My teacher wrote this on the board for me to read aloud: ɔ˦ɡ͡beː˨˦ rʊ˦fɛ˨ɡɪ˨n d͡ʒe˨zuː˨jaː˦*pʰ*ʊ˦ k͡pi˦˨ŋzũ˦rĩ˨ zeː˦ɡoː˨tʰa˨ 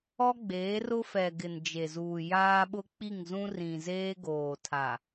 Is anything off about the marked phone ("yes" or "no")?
yes